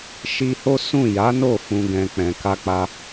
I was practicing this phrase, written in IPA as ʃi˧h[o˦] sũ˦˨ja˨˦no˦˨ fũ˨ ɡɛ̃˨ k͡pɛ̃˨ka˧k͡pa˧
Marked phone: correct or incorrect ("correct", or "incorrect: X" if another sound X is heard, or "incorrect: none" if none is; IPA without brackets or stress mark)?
correct